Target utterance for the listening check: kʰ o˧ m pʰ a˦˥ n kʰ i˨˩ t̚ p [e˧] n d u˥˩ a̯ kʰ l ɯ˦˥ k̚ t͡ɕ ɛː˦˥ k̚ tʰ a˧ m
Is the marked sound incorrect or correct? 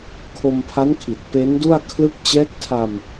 incorrect